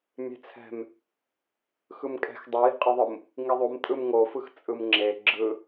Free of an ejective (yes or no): no